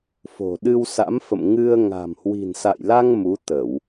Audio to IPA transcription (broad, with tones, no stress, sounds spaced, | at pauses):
f o̤˨˩ ɗ ɨ˧ w s a̰˧˥ m f ə̰˧˨ m ŋ ɨ˧ ə̯ ŋ a̤˨˩ m h w i̤˨˩ n s a̰˧˨ j l a˧ ŋ m u˨˦ t̪ ə˧˩˨ w